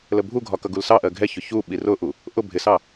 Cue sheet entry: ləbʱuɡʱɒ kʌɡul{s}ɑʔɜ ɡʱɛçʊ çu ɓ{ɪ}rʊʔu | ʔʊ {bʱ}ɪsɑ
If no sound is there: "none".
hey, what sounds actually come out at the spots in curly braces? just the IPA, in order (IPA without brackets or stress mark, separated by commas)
s, i, bʱ